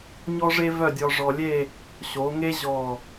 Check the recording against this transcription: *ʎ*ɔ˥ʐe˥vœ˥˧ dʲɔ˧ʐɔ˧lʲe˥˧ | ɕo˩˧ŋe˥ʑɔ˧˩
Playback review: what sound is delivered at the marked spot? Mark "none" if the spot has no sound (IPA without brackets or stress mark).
ɲ